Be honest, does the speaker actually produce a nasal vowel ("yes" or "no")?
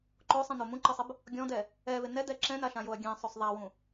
yes